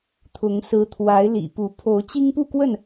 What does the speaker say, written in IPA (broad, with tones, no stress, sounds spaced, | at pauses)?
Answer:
t̪ʰ ʊ˨˦ ŋ s ɹ̩˨˦ t̪ʰ w a˨˦ ɪ̯ l ḭ˨˩ p u˨˦ pʰ o˨˦ ʊ̯ t͡ɕ i˦ ŋ p u˥˨ k w ə˥˨ n